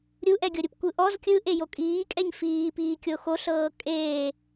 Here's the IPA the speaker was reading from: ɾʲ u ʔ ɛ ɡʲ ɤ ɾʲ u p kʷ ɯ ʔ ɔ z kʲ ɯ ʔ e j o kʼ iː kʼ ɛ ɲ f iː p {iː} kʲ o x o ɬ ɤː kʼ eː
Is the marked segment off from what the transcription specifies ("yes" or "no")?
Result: no